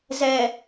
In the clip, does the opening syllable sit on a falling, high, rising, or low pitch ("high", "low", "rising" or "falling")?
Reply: low